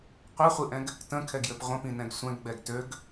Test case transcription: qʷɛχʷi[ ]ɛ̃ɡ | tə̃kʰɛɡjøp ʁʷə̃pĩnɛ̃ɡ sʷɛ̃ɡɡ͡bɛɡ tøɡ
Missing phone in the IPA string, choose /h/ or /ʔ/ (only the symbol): ʔ